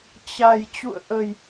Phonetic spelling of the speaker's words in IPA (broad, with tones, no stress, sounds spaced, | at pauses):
t͡ɕ a˨˩ j t͡ɕ ṵ˧˨ ə̯ ʔ ə˨˩ j